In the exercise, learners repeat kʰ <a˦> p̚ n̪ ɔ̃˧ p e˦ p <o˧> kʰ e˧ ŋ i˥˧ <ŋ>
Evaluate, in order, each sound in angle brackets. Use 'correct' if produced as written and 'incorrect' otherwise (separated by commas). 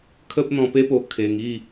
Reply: incorrect, correct, incorrect